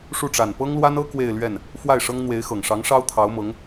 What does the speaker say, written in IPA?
ʂ u˥˩ ʈ͡ʂ a˨˩ n p ɤ˥ ŋ l w a˥ n ɤ˥ k w e˥˧ ɪ̯ l ɥ ɛ˥˩ n | f w a˥˩ ɪ̯ ʂ ɤ˥ ŋ n̪ w e˧˥ ɪ̯ x ɤ˨˩ ŋ ʂ ɑ˧˥ ŋ ʂ ɑ˥ ʊ̯ t̪ʰ ɑ˧˥ ʊ̯ m ɤ˧˥ ŋ

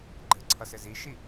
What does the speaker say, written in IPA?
ɡ͡ǃ ɘ ǀʰ ʌ s ɘ z i ʃ i

